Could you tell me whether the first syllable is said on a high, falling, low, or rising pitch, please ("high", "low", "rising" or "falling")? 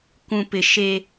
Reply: low